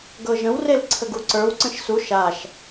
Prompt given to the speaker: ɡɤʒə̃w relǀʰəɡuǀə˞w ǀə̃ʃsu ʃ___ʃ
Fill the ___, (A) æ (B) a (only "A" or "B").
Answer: B